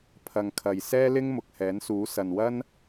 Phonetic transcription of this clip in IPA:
pʰ ɐ˨ ŋ kʰ ɐ˨ j s ɛː˥ l ɪ˥ ŋ m ʊ˨ k̚ h ɛː˨˥ n s uː˨˥ s ɐ˨ n w ɐ˥ n

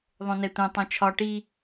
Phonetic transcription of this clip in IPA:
ðˤ õ n ɛ tʷ ɛ̃ tˤ õ t͡ʃʰ ɒ ʈ i

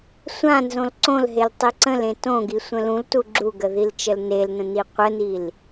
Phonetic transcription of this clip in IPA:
sʷ ã n z õ l ǀ õ l ɦ e l tˤ i ǀ ə̃ l ẽ t õ ɡ i sʷ ə̃ l ũ l t u ɡ͡ǁ u ɡ ə ð i l t͡ʃ ə l n e l n ə̃ n i qʷ ə n i l

